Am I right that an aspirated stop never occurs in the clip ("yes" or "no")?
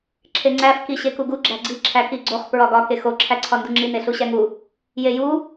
no